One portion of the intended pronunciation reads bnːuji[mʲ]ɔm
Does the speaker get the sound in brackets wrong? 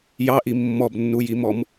yes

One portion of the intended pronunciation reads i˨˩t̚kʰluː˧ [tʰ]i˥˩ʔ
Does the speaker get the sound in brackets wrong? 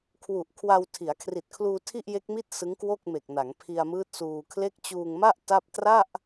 no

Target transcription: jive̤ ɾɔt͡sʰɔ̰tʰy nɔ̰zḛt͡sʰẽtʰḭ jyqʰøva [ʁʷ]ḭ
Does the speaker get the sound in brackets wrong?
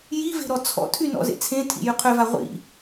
no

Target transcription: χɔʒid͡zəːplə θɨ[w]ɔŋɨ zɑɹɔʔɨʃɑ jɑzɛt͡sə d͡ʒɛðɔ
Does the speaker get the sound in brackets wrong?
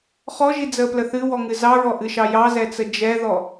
no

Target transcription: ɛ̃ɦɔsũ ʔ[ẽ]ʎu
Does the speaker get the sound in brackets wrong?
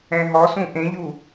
no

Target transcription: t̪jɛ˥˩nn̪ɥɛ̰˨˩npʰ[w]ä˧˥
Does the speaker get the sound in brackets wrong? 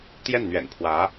no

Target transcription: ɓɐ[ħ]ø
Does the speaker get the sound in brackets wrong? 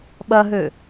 yes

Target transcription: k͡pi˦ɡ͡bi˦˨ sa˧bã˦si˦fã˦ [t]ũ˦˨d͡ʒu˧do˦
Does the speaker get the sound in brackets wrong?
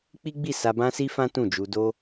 no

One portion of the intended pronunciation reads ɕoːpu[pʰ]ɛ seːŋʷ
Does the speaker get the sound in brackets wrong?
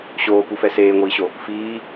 yes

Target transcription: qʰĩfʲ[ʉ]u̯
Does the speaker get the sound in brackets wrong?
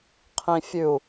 no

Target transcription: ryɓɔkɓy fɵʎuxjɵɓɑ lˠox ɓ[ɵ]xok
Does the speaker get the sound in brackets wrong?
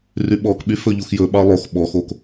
yes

